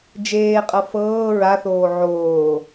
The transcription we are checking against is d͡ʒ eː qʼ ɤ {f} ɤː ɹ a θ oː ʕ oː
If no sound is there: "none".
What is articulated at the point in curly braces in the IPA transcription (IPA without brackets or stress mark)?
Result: f